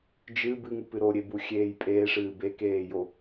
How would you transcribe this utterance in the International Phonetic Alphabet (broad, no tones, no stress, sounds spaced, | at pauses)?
d͡ʒ ɨ b ɨ ŋ u p ɨ ɾ o ɾʲ e b u xʲ eː j pʼ eː ʂ ɨː b e k eː j o